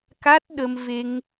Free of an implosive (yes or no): no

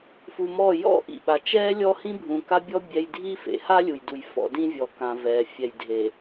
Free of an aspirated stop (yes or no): yes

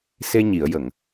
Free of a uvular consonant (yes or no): yes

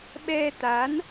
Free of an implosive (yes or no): no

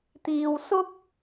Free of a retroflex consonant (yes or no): yes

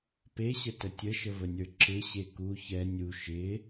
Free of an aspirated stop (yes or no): yes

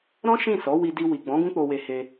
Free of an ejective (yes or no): yes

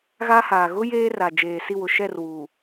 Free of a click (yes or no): yes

